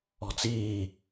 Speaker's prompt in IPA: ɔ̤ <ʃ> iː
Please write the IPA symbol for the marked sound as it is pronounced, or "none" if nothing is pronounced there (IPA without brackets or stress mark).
t͡s